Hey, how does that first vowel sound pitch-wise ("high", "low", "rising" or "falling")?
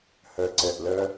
low